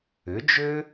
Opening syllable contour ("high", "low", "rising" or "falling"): rising